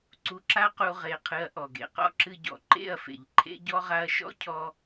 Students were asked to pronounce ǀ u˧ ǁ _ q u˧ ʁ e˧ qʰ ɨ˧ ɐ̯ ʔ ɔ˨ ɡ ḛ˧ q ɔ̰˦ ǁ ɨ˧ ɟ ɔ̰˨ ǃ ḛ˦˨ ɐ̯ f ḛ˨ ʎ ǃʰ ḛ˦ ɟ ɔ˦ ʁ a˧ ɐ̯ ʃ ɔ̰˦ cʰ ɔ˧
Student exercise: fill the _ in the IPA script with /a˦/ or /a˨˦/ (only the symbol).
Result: a˦